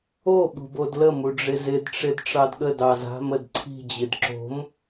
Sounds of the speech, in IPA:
o ɓ ṳ b o d l ə m u ɖ͡ʐ ɪ z ɪ d ʈ͡ʂ ɪ d ʈ͡ʂ ɑ d ɠ ə d ɑ z a̤ m ə d ǀʰ i̤ d͡ʑ ɪ d ǁ o̤ m

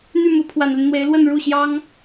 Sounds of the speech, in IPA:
n̪ y˥˩ m u˧˥ pʰ w a˨˩ n l y˦ n n̪ w e˧˥ ɪ̯ l w ə˥˧ n ɻ u˥˩ ɕ j ɑ˥ ŋ

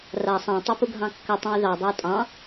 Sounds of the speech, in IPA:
r a sˤ ã tˤ ɯ p u ɡʱ ɑ̃ kː ə tˤ ũ y̯ ð ɑ dˤ ɑ tʼ ɑ̃

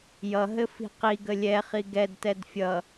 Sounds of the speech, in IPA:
j ʌ ɦ ɘ f i̤ q i ɡ ə lʲ ɛ χ i ɡ ɛ d t ɛ d fʲ ʌ

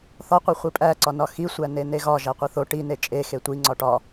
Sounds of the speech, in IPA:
θ ɒ qʷ e χʷ i pʼ æ ǀ ɒ n ɒ x i sʷ æ n e n e ɣ ɒ ʒ æ qʷ i θ o ʈ i n e t͡ʃʼ e x e tʷ i ŋ͡ǀ ɒ ʈ ɒ

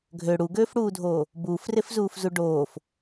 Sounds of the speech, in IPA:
ɡʱ ø ɽ u ɡ øː f ɽ uː dʱ oː | b uː f r e f z uː f z u ɖ oː f

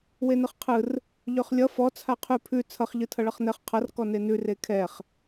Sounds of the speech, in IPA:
w e n ɯ χ qʰ ɯ r | ʎ ø χ lʲ ʌ f ɔ t͡sʰ a qʰ ʉ pʰ ʉ t͡sʰ ʌ χ ʎ ɯ tʰ ʌ ɭ ʌ χ n ɛ χ qʰ ʌ r k ɔ n e n ʉ r e kʰ ɛ χ

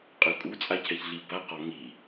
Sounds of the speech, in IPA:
qʼ ɯ kʼ u t͡sʼ a cʰ ɛ ç ɮ i b a q ɔ ŋ i

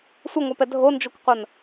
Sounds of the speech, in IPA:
sʷ ɐ ŋʷ a p ɛ dʱ o n d͡ʒ o kʷ qʷ ɐ n

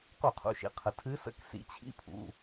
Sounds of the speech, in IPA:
q u˧˩˧ qʰ ṵ˩˧˩ ʃ ḭ˩ qʰ ə˩ tʰ ɨ˨˦ s ə̰˧˥˧ k s ḭ˨˦ t͡ɕʰ ḭ˧˥˧ pʰ ṵ˩˧˩

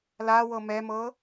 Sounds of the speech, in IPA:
l a w ɤ m ɛ m ɤ

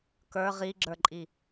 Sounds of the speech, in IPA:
k ə˞ ʁ i ɡ͡ǁ ə˞ ǃʼ i

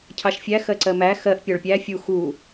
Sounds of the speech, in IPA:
cʰ ɑ ʃ fʲ æ x ɜ ǀ ɜ m æ x ɜ ʔ pʲ ɒ ɭ pʲ æ fʲ u x u

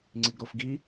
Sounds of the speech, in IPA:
ŋ͡ǀ i ɡ ɾ o f ɡ i

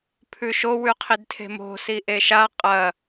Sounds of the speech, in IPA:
pʰ ʉ ʃ o w ʉ qʰ i d tʰ e̤ m o̤ s i ʔ e ʃ a qʼ ɐ

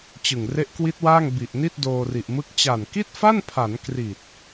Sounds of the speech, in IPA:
t͡ɕ ɯ˨˩ ŋ r e˦˥ ʔ k w i˦˥ t̚ w aː˥˩ ŋ b i˨˩ ʔ n i˥˩ t̚ d oː˧ r i˨˩ ʔ m ɯ˥˩ k̚ t͡ɕ a˨˩ n k i˥˩ t̚ f a˥˩ n pʰ a˩˦ n k r i˨˩ t̚

